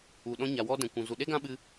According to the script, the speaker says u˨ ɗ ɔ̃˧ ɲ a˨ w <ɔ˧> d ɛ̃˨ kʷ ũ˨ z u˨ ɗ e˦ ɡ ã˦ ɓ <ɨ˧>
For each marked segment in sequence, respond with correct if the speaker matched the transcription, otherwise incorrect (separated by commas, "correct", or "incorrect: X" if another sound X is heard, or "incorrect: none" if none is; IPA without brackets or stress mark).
correct, correct